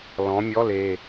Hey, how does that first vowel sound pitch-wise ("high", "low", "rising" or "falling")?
rising